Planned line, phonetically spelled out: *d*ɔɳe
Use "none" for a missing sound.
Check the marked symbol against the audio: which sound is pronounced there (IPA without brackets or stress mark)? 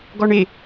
ɡ